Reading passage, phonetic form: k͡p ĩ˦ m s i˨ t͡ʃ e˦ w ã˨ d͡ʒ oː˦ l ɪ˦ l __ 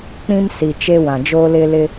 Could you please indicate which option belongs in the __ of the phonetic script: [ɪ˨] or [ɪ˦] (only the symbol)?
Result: ɪ˦